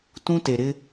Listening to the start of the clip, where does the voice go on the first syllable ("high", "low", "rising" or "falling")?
high